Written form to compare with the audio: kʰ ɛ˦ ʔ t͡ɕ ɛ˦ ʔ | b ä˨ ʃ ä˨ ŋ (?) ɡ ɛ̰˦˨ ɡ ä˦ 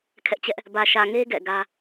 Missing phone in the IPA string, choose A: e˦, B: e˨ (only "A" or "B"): A